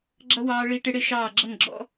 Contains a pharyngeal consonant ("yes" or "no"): no